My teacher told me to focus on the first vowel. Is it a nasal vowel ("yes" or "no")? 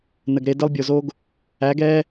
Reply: no